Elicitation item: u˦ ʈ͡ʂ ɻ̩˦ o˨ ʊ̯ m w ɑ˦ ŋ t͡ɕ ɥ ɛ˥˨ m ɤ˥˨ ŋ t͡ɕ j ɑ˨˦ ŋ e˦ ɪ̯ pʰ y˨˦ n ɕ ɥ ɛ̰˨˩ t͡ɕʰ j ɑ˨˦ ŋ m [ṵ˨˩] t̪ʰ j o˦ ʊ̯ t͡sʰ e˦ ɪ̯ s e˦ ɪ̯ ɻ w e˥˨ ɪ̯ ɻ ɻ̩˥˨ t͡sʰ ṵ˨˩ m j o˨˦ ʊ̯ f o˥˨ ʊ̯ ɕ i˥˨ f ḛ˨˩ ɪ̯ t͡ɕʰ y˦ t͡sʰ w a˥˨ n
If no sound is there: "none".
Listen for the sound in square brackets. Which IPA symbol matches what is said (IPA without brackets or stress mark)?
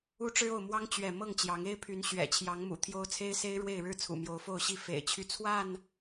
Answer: ṵ˨˩